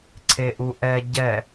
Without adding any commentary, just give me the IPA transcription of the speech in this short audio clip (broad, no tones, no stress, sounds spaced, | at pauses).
ǀʰ e ʔ u ʔ ɛ ɟ ɛ